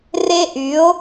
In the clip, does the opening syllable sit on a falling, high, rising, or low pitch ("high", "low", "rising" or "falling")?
high